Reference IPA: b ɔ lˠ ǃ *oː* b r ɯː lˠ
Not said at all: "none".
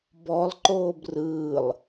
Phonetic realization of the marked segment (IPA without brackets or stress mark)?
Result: oː